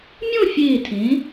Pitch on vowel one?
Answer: falling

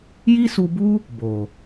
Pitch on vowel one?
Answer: high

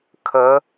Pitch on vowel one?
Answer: rising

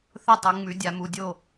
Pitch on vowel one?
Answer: falling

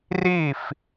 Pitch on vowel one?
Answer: falling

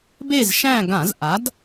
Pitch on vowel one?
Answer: falling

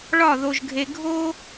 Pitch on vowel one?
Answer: falling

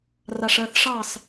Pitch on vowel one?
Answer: low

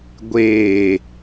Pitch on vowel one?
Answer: low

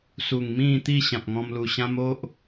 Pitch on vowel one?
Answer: low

